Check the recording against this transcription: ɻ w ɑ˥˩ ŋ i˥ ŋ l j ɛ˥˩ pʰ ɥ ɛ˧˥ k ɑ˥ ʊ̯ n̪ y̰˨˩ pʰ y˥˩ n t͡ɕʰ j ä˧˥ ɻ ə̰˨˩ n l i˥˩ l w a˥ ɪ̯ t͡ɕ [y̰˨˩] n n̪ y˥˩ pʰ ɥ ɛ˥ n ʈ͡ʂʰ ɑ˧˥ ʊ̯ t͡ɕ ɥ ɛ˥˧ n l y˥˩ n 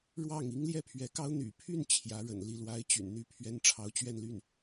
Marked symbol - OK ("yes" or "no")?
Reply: yes